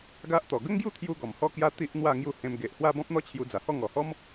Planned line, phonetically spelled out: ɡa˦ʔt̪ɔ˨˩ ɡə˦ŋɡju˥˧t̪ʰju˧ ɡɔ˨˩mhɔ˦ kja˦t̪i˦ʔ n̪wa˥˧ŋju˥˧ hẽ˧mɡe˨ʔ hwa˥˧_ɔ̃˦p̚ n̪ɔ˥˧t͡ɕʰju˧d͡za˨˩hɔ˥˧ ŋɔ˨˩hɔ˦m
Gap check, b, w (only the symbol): b